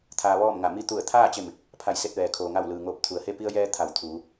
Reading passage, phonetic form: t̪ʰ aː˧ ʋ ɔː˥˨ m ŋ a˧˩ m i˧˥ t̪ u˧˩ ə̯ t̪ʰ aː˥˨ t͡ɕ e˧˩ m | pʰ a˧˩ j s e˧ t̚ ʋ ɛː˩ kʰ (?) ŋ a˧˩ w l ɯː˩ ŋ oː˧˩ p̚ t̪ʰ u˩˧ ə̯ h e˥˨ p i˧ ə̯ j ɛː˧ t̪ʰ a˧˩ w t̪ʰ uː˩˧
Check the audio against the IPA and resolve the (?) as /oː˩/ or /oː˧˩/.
oː˩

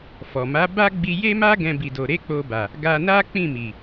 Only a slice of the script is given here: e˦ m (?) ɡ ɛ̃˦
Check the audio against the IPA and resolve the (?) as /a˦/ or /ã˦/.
a˦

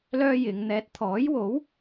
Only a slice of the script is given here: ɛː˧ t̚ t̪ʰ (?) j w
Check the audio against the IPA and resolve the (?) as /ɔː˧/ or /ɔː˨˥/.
ɔː˨˥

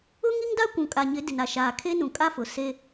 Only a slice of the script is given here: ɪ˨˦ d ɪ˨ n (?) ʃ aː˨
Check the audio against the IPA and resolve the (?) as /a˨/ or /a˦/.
a˨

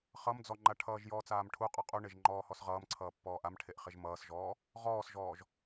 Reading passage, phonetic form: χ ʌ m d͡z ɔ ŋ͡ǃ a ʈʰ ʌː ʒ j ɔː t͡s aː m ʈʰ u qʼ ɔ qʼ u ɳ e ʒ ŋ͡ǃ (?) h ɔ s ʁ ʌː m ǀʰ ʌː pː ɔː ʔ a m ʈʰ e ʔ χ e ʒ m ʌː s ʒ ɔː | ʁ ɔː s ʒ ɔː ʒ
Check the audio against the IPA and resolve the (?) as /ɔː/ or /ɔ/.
ɔː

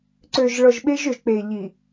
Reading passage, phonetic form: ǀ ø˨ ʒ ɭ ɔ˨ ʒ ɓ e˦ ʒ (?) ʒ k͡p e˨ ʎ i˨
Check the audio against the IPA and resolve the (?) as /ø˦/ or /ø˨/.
ø˨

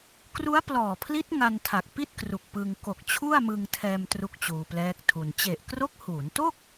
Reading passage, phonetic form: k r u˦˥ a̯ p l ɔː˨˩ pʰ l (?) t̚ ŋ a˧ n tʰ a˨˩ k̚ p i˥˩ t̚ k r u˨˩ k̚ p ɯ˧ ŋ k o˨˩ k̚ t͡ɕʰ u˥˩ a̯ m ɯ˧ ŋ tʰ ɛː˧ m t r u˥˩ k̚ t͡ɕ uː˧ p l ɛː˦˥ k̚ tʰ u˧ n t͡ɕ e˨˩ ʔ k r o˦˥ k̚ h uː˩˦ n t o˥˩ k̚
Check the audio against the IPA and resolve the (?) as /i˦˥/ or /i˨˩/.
i˦˥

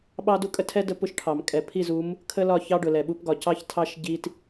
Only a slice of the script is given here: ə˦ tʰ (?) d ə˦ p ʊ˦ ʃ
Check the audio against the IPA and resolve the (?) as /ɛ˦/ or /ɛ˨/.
ɛ˦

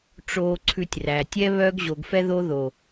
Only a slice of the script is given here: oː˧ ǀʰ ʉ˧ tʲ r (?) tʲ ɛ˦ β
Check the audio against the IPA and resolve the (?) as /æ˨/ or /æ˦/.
æ˨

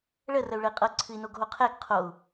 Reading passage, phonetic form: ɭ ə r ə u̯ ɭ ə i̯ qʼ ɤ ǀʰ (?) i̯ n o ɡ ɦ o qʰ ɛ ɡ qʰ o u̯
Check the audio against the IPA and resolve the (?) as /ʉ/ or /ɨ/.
ɨ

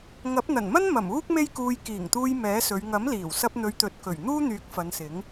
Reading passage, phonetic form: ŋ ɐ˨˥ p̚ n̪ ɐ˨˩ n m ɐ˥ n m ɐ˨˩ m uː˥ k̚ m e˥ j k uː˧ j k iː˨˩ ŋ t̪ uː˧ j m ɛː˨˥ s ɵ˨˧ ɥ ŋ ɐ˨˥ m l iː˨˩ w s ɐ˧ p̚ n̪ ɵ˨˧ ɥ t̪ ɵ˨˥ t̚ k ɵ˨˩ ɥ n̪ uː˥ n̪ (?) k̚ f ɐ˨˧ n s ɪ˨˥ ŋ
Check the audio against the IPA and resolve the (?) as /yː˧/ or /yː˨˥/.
yː˨˥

